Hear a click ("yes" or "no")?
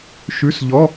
no